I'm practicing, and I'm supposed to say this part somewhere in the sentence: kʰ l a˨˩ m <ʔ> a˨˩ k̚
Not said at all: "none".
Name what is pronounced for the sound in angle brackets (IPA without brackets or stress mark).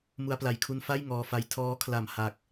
h